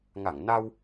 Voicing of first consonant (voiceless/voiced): voiced